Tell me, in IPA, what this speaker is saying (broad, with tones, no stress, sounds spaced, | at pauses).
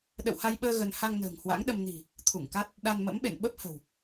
ɗ ə̰˧˨ w h a˧ j ɓ əː˧ ɣ ə˧ n h a˧ ŋ n ə̤ː˨˩ ŋ h w a̰˧˥ ŋ ɗ ə˧ m n i̤˨˩ | t̪ʰ u˧˩ ŋ k a˦˥ t̚ | ɗ a˧ n m ə̰˧˥ m ɓ ḛ˧˨ n ɓ ə˦˥ p̚ h ə̤˨˩ w